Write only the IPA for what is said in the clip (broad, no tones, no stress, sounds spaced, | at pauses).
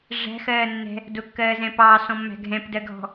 ʐ æ̤ x ɜː nː ɛ̤ | d ʊ kː ɜː z ɛ̃ p ɑː s ɔ̃ mː æ̤ ɡʱ ɛ̃ p d ɜ ɡʱ ɔ̤